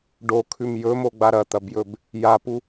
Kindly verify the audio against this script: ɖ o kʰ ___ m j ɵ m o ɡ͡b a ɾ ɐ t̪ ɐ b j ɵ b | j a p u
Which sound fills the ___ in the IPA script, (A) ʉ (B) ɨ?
A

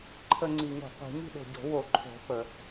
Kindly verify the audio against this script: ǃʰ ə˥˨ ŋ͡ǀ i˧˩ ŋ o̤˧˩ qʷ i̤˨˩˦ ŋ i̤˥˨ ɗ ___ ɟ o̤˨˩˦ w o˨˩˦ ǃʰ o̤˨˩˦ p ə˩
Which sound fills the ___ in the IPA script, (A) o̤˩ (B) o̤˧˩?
B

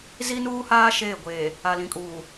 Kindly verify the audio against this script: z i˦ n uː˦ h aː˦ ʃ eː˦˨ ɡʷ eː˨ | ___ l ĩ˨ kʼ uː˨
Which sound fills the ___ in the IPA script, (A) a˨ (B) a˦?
A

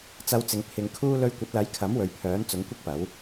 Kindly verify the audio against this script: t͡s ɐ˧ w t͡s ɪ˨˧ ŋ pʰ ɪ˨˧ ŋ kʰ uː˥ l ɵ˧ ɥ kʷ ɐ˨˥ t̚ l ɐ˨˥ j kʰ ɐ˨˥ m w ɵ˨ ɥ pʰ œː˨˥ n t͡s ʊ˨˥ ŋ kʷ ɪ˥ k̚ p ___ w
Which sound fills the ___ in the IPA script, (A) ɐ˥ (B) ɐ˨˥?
B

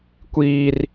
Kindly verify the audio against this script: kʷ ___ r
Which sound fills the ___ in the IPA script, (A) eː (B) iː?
B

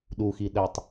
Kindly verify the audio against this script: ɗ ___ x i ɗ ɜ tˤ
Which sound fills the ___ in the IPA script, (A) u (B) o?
A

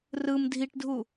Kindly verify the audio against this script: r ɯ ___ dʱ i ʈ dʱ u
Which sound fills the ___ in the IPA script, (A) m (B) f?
A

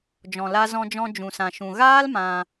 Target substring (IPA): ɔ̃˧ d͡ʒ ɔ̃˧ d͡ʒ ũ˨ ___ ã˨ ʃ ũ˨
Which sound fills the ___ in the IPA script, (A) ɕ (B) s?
B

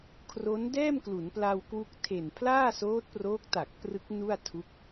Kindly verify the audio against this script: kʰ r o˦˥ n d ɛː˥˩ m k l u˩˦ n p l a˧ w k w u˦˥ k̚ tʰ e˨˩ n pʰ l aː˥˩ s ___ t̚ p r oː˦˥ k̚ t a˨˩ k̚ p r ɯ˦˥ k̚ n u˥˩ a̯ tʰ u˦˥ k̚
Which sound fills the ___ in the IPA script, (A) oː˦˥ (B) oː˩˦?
A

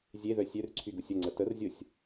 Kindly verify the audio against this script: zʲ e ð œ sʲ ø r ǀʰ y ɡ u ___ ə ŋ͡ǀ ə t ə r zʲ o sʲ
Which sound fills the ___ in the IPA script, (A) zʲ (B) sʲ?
B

